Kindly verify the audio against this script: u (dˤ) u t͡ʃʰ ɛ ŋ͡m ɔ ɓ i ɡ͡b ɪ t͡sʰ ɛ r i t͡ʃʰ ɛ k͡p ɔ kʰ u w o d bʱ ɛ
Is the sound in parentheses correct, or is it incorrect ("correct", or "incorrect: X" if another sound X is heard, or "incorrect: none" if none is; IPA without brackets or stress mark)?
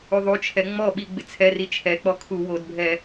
incorrect: ðˤ